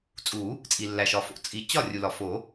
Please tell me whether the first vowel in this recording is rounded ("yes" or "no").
yes